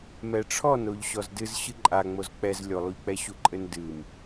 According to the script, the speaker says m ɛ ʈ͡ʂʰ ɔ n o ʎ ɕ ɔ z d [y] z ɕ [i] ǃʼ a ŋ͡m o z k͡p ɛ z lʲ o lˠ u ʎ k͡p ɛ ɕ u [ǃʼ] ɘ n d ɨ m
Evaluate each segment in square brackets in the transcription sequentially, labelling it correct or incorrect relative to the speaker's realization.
incorrect: ɨ, incorrect: ɨ, correct

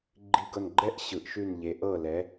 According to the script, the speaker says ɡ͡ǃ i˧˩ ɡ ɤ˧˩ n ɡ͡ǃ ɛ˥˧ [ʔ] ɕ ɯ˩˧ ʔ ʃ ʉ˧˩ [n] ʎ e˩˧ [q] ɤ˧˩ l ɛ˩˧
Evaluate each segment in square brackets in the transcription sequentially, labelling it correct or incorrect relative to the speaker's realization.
correct, correct, incorrect: ʔ

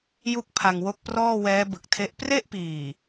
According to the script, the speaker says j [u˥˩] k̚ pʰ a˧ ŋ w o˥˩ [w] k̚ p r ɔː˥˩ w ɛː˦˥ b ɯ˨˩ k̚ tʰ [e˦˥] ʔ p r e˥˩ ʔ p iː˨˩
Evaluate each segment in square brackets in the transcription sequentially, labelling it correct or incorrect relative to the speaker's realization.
correct, incorrect: none, correct

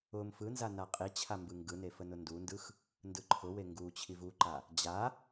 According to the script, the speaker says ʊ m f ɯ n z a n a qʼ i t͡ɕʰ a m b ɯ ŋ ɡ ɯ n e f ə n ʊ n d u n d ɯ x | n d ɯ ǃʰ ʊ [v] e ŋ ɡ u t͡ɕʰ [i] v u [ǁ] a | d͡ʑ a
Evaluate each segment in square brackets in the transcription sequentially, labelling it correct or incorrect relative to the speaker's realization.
incorrect: w, correct, incorrect: ǃ

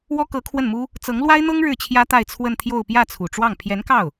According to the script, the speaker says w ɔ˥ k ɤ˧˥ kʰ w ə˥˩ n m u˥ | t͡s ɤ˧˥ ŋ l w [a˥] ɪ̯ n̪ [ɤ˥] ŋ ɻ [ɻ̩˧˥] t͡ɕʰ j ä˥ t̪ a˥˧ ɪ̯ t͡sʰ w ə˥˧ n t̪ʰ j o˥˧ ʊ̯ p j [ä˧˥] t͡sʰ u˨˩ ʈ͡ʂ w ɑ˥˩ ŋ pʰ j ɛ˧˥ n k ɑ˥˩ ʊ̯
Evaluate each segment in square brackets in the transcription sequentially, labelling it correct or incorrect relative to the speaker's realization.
correct, correct, incorrect: ɻ̩˥˩, incorrect: ä˥˩

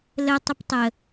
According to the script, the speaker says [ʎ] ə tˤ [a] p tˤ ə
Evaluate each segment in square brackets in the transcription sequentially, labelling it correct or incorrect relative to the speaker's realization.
incorrect: l, incorrect: ə

